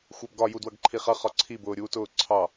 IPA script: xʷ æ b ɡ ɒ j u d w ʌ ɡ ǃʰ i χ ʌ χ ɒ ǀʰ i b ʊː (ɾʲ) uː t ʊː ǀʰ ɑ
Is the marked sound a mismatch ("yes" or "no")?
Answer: no